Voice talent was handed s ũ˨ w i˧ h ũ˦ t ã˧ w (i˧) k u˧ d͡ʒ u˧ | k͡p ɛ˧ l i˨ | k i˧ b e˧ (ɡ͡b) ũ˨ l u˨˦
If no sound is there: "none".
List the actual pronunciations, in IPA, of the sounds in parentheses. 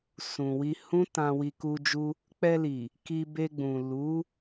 i˧, ɡ͡b

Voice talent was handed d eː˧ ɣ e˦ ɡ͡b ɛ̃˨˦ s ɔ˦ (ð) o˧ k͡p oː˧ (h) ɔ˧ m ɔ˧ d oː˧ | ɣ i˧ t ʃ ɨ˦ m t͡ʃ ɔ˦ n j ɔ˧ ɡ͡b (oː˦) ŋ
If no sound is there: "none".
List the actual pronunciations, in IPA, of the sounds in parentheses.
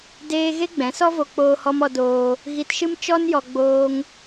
v, h, oː˧

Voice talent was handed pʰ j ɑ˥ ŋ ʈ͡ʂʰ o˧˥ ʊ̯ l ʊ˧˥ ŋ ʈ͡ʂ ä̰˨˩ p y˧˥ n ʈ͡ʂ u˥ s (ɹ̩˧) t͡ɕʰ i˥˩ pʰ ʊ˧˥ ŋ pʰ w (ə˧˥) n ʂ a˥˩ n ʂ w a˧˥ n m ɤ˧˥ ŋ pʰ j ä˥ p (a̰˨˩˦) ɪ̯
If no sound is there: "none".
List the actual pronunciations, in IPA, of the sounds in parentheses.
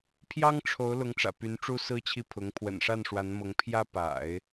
ɹ̩˥, ə̰˨˩, a̰˨˩˦

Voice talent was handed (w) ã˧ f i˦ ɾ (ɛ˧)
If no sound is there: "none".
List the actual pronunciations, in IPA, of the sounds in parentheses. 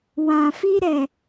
w, ɛ˧

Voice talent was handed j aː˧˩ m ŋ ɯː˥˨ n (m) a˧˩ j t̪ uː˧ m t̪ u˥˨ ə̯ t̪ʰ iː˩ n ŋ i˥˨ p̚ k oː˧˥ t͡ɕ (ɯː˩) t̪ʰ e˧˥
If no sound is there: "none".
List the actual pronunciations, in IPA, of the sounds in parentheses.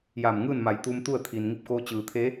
m, ɯː˩

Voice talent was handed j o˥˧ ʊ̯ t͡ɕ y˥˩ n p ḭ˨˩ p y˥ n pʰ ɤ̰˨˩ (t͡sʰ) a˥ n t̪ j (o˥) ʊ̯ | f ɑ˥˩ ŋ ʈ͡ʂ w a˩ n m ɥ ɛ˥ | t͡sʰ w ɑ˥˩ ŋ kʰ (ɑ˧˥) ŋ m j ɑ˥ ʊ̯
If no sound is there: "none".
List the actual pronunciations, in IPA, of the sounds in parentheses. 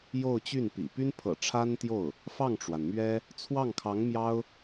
ʈ͡ʂʰ, o˥˩, ɑ˧˥

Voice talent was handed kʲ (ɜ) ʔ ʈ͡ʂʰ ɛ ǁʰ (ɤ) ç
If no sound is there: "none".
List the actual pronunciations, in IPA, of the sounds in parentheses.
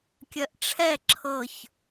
ɜ, ɤ

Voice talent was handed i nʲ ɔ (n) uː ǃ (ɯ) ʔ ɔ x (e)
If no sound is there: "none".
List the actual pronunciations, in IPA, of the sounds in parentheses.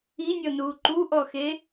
n, u, e

